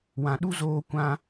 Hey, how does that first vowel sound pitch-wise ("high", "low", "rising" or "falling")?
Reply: low